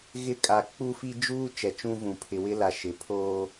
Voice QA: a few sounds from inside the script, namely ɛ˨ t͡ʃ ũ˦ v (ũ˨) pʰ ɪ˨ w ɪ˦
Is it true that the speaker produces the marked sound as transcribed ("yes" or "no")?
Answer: yes